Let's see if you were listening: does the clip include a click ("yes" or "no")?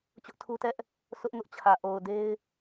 no